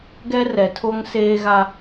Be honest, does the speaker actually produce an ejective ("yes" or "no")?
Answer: no